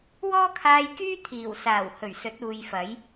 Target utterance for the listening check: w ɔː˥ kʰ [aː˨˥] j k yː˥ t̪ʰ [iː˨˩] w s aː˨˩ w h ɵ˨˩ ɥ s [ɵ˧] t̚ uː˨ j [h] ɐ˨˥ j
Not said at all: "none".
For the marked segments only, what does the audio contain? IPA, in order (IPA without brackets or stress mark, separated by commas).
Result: aː˧, iː˨˩, ɵ˨˥, f